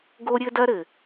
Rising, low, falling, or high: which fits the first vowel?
high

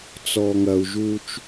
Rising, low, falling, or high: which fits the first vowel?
low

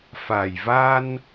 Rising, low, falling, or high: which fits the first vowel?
low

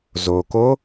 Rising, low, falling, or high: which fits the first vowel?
low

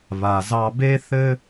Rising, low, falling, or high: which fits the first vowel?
low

